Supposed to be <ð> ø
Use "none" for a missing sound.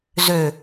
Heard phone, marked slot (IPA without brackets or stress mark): z